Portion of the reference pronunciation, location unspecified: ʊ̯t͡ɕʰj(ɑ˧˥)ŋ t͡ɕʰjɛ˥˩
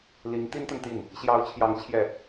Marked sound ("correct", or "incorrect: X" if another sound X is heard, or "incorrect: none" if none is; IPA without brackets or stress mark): correct